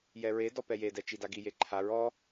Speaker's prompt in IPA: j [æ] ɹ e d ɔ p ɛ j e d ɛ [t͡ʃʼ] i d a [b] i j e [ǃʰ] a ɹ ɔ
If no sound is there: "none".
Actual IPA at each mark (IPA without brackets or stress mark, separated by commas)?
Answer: ɛ, t͡ʃ, ɡ, ǃʰ